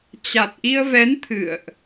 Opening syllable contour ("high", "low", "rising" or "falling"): low